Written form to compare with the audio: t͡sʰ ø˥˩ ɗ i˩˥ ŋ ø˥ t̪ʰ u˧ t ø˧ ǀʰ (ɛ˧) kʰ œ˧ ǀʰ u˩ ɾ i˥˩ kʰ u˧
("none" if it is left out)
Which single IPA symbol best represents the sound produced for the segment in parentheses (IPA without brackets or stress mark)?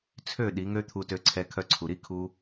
ɛ˧